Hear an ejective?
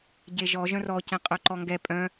yes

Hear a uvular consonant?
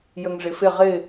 yes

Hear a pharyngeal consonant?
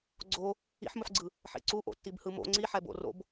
yes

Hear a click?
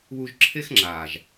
yes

